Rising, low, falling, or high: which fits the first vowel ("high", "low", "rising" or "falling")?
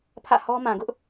falling